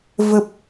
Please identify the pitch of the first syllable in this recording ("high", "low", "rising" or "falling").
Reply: low